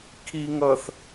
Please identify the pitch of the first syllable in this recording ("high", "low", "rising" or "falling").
low